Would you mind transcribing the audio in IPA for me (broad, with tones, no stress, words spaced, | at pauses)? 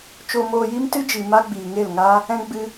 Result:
t͡ʃo˧ moː˧ji˦m tɨ˦d͡ʒi˨ ma˦ ɡ͡biː˨ŋe˦˨lŋaː˦ | ɛ̃˧ ɡ͡bɨ˧